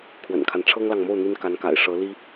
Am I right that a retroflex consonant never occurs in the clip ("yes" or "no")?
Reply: no